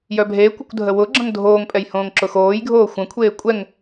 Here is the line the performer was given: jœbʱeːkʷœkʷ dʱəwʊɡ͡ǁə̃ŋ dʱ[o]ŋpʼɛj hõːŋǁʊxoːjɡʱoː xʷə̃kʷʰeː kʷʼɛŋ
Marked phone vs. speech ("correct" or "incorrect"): incorrect